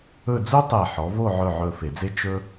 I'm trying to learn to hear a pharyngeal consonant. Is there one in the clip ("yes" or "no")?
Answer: yes